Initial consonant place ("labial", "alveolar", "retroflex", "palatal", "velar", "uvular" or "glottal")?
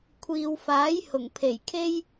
velar